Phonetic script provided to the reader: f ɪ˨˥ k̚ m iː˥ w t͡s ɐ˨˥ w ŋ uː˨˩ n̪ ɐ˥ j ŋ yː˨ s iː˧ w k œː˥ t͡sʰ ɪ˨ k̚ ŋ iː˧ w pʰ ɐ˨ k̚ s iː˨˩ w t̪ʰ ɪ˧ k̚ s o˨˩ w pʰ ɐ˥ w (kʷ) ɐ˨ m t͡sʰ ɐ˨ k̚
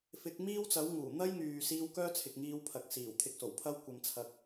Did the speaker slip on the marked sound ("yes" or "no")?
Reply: no